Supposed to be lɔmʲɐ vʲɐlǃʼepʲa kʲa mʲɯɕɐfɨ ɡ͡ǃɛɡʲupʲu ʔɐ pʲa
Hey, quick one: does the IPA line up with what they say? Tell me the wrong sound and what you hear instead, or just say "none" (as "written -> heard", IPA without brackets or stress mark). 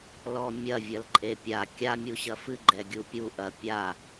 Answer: ɯ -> u